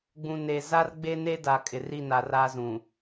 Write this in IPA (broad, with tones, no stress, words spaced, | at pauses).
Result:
ɡ͡bũ˨ne˨ za˦rɡ͡be˦ne˦da˨ kʼɪ˨ri˦˨na˨ ra˦zũ˨